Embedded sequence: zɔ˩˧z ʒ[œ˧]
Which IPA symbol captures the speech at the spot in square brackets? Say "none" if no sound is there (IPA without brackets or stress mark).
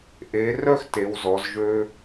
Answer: ø˧